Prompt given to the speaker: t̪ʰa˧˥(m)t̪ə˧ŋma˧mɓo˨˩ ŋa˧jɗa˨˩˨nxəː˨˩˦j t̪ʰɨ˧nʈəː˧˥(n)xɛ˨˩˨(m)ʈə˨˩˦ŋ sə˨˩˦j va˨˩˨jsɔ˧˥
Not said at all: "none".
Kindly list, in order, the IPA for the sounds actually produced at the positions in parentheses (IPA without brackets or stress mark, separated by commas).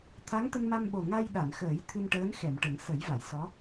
ŋ, n, m